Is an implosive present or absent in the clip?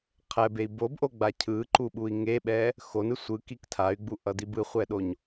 present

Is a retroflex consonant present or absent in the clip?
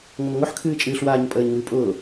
absent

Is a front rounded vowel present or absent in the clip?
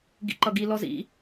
absent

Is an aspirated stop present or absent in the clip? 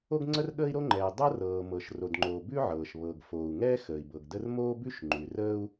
absent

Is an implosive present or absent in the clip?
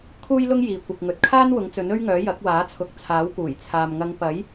absent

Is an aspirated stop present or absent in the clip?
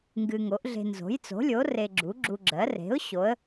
absent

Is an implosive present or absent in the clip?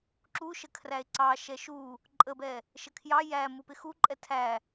absent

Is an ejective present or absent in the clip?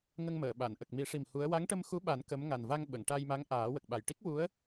absent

